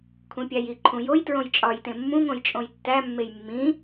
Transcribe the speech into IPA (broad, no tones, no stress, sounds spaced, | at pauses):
kʰ ũ pʲ æ j i ǃʰ ũ j o j t ɹ õ j t͡ʃʼ ɒ j t ẽ mː ũ ŋ õ j t͡ʃʼ õ j tː æ mː e j mː ĩ